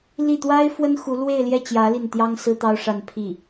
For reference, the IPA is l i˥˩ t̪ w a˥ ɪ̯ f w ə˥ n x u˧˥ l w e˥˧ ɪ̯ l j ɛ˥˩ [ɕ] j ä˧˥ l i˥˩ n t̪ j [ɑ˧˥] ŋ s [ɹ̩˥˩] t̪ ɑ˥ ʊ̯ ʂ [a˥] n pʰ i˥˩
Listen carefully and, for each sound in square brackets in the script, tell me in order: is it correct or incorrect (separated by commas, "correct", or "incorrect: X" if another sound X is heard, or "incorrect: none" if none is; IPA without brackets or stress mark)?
incorrect: t͡ɕ, incorrect: ɑ˥, incorrect: ɹ̩˥, incorrect: a˥˧